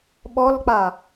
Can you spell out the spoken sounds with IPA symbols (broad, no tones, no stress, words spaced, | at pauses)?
ɓɔlk͡pa